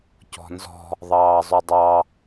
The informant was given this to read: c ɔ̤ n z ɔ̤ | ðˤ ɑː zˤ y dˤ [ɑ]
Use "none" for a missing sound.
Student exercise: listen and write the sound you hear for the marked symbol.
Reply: ɑ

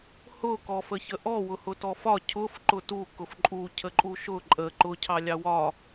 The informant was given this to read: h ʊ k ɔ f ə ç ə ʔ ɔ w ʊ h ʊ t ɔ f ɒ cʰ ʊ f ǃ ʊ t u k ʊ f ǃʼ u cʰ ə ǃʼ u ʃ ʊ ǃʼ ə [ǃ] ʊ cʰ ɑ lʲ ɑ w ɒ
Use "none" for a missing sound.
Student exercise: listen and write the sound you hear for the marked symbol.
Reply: ǃ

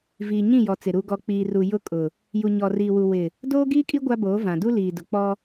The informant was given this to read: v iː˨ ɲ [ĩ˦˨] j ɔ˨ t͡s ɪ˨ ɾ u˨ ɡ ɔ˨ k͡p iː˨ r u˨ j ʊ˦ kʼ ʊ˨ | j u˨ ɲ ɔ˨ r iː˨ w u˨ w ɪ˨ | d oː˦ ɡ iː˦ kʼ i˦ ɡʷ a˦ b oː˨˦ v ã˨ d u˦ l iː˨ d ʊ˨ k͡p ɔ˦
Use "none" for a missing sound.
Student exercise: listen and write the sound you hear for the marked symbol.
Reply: ĩ˦˨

